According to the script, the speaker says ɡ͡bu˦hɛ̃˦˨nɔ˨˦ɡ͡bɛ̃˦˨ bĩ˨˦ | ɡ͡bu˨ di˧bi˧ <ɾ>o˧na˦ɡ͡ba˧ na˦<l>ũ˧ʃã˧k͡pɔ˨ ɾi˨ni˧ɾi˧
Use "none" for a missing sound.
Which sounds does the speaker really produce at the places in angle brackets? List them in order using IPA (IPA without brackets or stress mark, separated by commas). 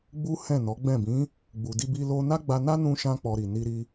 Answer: l, n